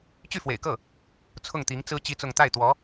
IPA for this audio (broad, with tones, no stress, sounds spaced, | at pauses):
t͡ɕ y˥˩ f w ḛ˨˩ ɪ̯ k ɤ˥˩ | t͡sʰ ʊ˥˩ ŋ t̪ i˧˥ ŋ t͡s ɹ̩˥ t͡ɕ i˥ t͡s ʊ˥˧ ŋ t̪ a˥˩ ɪ̯ t̪ w ɔ˧˥